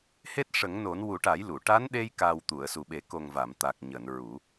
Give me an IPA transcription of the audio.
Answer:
h e˦˥ t̚ ʂ ə˨˩˦ ŋ n o˨˩˦ n w u˨˩˦ ʈ a˨˩˦ j l u˨˩˨ ʈ a˧˥ n ɗ e˧ j k aː˨˩ w t̪ u˨˩˨ ə̯ s u˨˩ ɓ e˨˩˦ k o˨˩ ŋ v a˨˩˨ m t̪ a˨˩ k̚ ɲ əː˨˩˨ n ɹ u˨˩˦

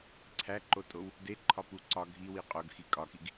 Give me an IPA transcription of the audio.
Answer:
ǀʰ æ ǃ o tʼ o w | d e ǃʰ ɒ p u ǀ ɒ ɡʱ i w i qʼ o ɡ x i kʼ ɒ k i ɡ

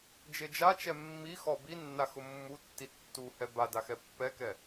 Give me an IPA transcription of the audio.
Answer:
d͡ʒ e d͡ʒ a t͡ʃ ɛ mː i x ɔ b i nː a x ʊ mː u tː i tː u h ɛ b a d a x ɛ pː ɛ k ɛ

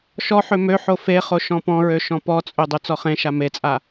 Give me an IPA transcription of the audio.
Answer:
ʃ ɔ ħ ø m ø ħ o f e χ o ʃ ɔ̃ p ɔ̃ ɹ ø ʃ ɔ̃ p ɔ t͡sʼ ø dˤ ø t͡s ɔ χ ẽ ʃ a m e t͡sʼ a

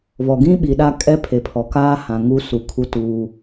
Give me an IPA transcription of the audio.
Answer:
β ɔ˨ ɡ ĩ˦ ɓ i˨ ɗ a˦ kʼ ɛ˦ pʰ e˨ pʰ ɔ˨ k aː˦ h ã˨ ŋ u˦ s u˨ kʰ u˦ t uː˦

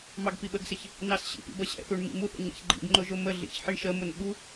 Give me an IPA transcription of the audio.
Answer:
m ɑ ɡ p i ɓ ə ɡ s ɪ ç | n ɑ s ɕ ḭ p ḭ b ʌ ɕ ɛ̰ θ u ɳ m ḭ m u θ ə̰ ɲ ɛ̰ ç ɡ͡ǃ ḭ ɡ ŋ͡ǃ ʊ ʒ ʊ m ə ɮ ḭ ç ħ i ɳ ʃ ə m ʊ n ɓ u

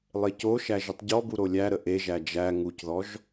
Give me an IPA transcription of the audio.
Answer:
lˠ e c o ʃ æ ʒ ə tˤ ɟ ɔ b u ɾ o lʲ æ ɾ ə ʔ e ʒ æ d͡ʒ æ ŋ u c ð ɔ ʒ

